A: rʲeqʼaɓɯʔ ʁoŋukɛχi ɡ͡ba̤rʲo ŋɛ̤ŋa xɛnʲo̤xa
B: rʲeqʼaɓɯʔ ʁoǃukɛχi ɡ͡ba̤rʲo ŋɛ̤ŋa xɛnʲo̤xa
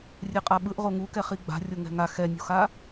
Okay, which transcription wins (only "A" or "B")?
A